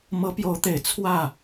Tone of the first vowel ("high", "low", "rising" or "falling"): rising